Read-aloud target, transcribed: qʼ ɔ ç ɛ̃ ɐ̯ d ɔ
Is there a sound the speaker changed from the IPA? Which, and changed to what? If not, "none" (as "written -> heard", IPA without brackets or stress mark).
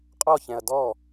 none